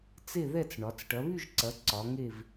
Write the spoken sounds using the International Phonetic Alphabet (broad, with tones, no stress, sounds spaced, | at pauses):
t͡s e˥˧ ð ɛ˥˧ t͡s ɳ ɒ˨˦ t͡s ʈ ɐ˨˦ β y˥˧ ʒ ǀ ɐ˨˦ ǀ ɒ˨˦ ŋ e˥˧ v